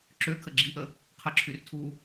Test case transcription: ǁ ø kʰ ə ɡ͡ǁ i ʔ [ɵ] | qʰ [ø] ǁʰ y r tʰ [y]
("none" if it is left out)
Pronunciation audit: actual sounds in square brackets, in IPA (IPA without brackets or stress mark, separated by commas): ə, ə, u